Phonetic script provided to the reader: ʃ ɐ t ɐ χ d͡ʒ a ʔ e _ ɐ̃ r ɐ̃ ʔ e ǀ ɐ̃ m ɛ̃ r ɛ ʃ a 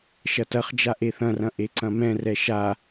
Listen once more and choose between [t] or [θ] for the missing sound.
θ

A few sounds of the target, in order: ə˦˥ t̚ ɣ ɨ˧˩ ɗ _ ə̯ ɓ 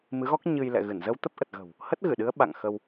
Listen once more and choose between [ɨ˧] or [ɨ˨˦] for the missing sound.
ɨ˨˦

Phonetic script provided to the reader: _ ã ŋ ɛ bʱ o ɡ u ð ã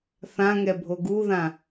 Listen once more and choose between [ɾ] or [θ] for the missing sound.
θ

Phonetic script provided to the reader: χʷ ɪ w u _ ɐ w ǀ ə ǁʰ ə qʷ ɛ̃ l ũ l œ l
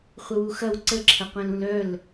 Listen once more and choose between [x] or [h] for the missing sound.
x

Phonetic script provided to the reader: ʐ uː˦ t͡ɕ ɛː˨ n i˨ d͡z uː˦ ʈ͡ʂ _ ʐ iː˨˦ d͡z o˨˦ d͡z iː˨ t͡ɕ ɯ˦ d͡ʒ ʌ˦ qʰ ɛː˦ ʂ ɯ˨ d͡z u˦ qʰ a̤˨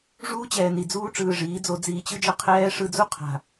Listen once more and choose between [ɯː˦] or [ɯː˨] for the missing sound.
ɯː˨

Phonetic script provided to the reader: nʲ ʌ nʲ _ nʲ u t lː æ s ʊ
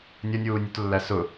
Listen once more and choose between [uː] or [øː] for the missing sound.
uː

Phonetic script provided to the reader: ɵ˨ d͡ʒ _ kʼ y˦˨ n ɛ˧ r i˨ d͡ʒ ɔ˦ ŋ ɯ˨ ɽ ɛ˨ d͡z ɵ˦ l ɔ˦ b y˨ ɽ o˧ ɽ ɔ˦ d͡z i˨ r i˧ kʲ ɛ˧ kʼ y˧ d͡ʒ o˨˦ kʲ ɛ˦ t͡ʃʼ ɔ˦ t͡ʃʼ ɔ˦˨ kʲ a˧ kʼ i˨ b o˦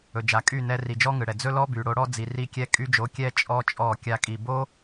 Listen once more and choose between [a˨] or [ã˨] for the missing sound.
a˨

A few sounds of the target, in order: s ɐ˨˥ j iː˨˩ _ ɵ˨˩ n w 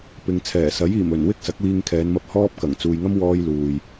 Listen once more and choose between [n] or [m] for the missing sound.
m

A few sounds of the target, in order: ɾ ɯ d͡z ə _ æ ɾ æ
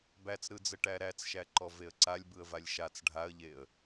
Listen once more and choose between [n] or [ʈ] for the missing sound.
ʈ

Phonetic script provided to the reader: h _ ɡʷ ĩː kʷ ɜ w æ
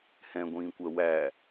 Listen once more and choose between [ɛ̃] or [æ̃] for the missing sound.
ɛ̃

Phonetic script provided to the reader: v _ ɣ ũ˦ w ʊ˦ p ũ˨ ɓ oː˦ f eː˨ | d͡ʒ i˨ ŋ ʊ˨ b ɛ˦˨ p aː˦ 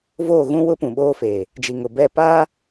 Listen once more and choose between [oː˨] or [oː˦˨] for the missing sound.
oː˦˨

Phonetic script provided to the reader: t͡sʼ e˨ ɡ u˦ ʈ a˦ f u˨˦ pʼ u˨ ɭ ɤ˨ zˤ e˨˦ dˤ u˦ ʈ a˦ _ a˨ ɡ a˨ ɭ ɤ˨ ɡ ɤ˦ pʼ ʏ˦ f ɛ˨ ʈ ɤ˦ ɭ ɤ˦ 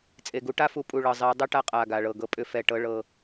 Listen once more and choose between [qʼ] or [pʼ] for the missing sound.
qʼ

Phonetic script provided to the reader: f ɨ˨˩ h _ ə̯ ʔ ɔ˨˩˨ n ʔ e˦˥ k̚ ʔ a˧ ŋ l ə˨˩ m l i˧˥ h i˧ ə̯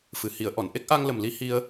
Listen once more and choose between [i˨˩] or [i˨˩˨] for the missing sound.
i˨˩˨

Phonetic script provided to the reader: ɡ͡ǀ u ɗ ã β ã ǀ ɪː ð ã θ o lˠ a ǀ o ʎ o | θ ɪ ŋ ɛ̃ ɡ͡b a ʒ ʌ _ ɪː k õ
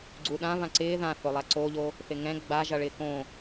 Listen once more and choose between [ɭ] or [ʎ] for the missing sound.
ɭ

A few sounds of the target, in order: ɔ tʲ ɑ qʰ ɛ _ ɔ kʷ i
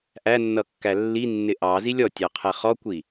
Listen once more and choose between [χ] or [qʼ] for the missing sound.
χ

